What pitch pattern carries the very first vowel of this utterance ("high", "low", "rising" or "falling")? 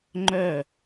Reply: falling